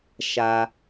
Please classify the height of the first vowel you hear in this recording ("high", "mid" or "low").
low